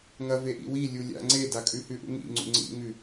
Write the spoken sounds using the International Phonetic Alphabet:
ŋɐveʔḭ wilʲu lʲa̰ ŋ͡ǀe dakʼʉhʉʔṵ ŋḭŋ͡ǀṵ ŋ͡ǀḭŋʉ

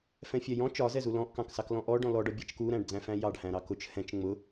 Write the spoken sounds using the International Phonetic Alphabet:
fɛ̃fʲɛjɔ̃ t͡ʃɒzɛzu lɔ̃ʔkɑ̃ksɑklɔ̃ ʔɔ ɖɔ̃lɔɖɒbʲæt͡ʃ kuɾæ̃ɖd͡zæ̃fæ̃ jɑɖhæ̃ ɾɑkʊt͡ʃ hɛ̃t͡ʃ ŋ͡mʊ

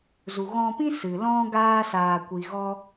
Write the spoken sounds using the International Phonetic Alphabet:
zu˨ɣɔ̃˧pĩ˦ sɨ˨ lɔ̃˦ ɡaː˦saː˧kʷi˧ ɣɔ˦

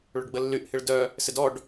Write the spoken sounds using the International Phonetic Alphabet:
ɭʊɖɡ͡bəlːyʔ hɪɭdœ | sɪdɔɖ

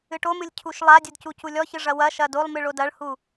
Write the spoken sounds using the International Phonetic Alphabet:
ɨʈomɨlʲ cʰuʃlˠadʲɨd cuculʲɔçɨ ʐɐwɐʃɐ dolˠmɨ ɭodɐɭhu

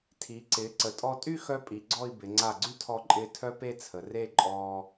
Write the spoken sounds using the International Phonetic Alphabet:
tʰi˩˧ ǀɪː˩˧ǀə˩˧tʼɔ˧tʼy˥˧ xœ˥pʼi˩˧ɡ͡ǀɔ˥˧i̯bɪ˩˧ ŋ͡ǀa˧˩ɡ͡ǀy˥tʰɔ˧ǃʼɪː˧ tʰœ˥pe˥˧t͡sʰə˩˧re˥˧ ǃʼɔː˧

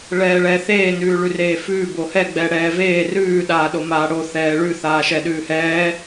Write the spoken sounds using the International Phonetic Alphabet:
ɭɛːɭɛːθeː nʉːɭʉreːfʉː bohɛ ɡ͡bɛɽɛːveː rʉː ɗaːɗomaːɽo θɛːɭʉ θaːʃɛɗʉːhɛː

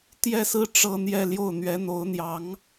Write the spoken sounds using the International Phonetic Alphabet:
t̪jɛ˥˩sɹ̩˥ ʈ͡ʂɤ˥˧n̪jɛ˥˧ljo˥˩ʊ̯ n̪ɥɛ˧˥n̪o˧˥ʊ̯n̪jɑ˧˥ŋ

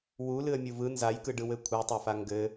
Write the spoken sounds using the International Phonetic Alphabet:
wu lɨə̯mʲuvɯ nzajkɯɖɯw ɘkʷʰɯtˤafa ŋɡɘ

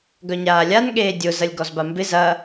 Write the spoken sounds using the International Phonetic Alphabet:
ɡœɲaːlʲan ɠeːdʲʊ zɐlʲɡɔzbambɪ zɐ

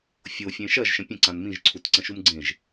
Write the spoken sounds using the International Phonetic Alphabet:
fʲofʲẽ ʃɐʒʃə̃ pʲə̃ ǀãnmĩʒǀʰut ǀə̃ʃumɡ͡ǀẽʒ

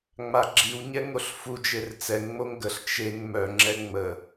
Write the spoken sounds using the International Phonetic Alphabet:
ŋ͡maɡ͡ǁiwɲɛ ŋoɬfud͡ʒer t͡sɛŋŋ͡moŋ ɡəɬ t͡ʃeŋ mœŋ͡ǁɛ ŋ͡mə

